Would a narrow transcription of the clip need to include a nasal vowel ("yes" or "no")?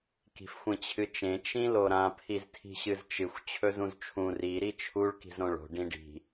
yes